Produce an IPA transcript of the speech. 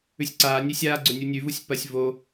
ʉ sʲ ǀ aː nʲ e sʲ aː ɡ͡ǀ ɵ nʲ u nʲ ʉ v u sʲ p ɐ sʲ v o

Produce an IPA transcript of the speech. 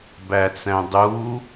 b æ t͡s æ̃ dˤ u

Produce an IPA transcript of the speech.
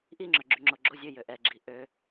ʔ i ŋ͡ǁ œ ɡ͡ǁ y ŋ͡ǁ o ɡ͡ǁ o zʲ ø j ø ʔ ɛ ɡ͡ǁ i ʔ ø

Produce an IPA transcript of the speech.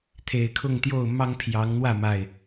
t̪ʰ e˨˩ ɪ̯ kʰ ʊ˥˨ ŋ t̪ j o˥˨ ʊ̯ m ɑ˦ ŋ pʰ j ɑ˨˦ ŋ n̪ w ä˥˨ m a˨˩ ɪ̯

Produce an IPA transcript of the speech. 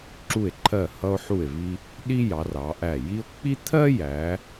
ǁ u˧˩ e̯ ǃʰ ɜ˧˩ h ʌ˧ o̯ ħ u˧˩ e̯ v i˧ | ɗ i˥ j ɑ˩˧ r ɑ˩˧ ʔ æ˧˩ j i˥ o̯ k͡p i˥ t̪ʰ ɜ˥ j æ˩˧

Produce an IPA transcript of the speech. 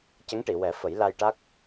c ə˧˥ ŋ ʈ i˨˩˨ w ɛ˨˩˦ f ə˨˩˦ j l a˧ j ʈ a˦˥ k̚

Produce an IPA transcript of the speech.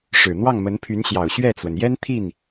ʂ ɻ̩˨˩ n̪ w ɑ˥˩ ŋ m ə˧˥ n pʰ y˧˥ n ɕ j ɑ˨˩ ʊ̯ ɕ ɥ ɛ˥˩ t͡s w ə˩ n j ɛ˥ n t̪ʰ i˥˩ n

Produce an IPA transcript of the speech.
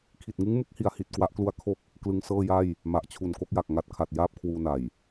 kʰ i˨˩ t̚ ŋ ɯ˦˥ ŋ m u˦˥ k̚ h i˩˦ a̯ h i˨˩ t̚ k w a˦˥ ʔ k l u˦˥ a̯ kʰ o˥˩ k̚ | k l ɯ˦˥ ŋ s ɤː˥˩ j a˥˩ j | m a˨˩ ʔ t͡ɕʰ u˨˩ n k o˥˩ k̚ j a˨˩ k̚ ŋ a˦˥ t̚ kʰ a˨˩ t̚ j aː˥˩ p̚ kʰ w uː˧ n a˨˩ j

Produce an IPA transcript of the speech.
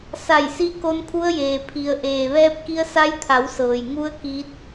s a˧˩ j s i˧ k o˧ n pʰ u˧ ə̯ j eː˩ pʰ i˩ ə̯ ʔ eː˩ ʋ ɛː˧ p̚ k i˧ ə̯ s a˧ j t̪ʰ a˩˧ w s ɤː˩ j ŋ u˧˥ ə̯ k iː˧ t̚

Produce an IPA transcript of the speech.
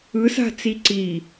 ɯ s a̤ t͡s i ǀ i

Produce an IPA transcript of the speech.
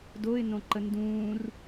d o ɪ̯ n õ ǃ ə n d ũː r

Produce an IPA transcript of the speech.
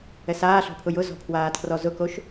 ɛ s aː ɬ ɔ̤ pʰ ʊ j ʊ z ɔ̤ pʰ w aː tʰ r ɔ z ʊ k o ʃ

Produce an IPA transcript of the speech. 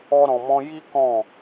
ɔ˦ ɾ ɔ̃˧ m ɔ̃˦ j i˦ k ɔ̃˦˨

